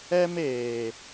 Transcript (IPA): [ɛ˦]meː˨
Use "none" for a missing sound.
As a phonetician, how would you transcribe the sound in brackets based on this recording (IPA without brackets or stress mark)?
ɛ˦